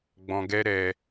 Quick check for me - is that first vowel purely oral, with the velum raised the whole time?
no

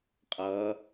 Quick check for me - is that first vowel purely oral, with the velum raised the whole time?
yes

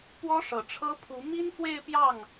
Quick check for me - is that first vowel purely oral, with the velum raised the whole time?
yes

